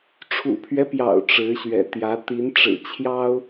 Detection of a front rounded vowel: absent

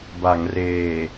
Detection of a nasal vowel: absent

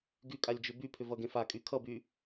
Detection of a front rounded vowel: present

